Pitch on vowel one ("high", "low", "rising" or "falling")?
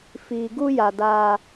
low